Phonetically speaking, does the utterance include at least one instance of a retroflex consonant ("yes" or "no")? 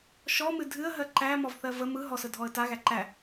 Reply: no